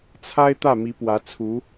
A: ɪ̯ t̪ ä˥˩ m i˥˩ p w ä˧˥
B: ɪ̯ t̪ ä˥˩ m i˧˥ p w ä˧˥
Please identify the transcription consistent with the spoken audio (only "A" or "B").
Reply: B